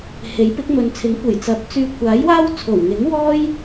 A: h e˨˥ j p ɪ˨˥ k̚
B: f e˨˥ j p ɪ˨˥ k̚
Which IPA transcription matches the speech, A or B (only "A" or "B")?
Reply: A